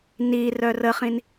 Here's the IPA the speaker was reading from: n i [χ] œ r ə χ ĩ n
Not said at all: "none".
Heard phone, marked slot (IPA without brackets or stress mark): r